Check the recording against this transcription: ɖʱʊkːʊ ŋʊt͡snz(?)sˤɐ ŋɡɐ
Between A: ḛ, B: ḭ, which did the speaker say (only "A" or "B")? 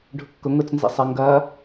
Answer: B